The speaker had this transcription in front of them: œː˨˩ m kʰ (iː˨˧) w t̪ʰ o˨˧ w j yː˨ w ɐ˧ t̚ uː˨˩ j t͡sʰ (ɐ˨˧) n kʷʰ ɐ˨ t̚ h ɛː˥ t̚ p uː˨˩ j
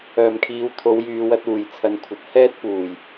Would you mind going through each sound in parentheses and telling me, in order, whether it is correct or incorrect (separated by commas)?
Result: correct, correct